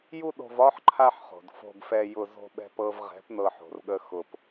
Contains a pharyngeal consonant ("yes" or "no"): yes